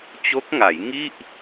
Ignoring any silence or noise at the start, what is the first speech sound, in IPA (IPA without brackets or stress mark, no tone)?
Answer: t͡ɕ